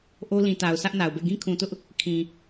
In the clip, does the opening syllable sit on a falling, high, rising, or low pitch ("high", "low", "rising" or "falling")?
high